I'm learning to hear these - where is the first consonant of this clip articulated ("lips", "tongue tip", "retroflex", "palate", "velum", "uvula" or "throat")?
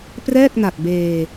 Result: lips